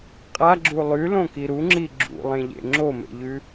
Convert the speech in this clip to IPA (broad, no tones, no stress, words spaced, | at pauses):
qʼaɡ͡ǁu lˠʉlõki ɾuŋ͡ǁi ɡ͡ǁṵlˠẽʎḛ ŋ͡ǁomḛʎʉ